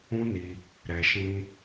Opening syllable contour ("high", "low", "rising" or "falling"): high